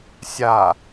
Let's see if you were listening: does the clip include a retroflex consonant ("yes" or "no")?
no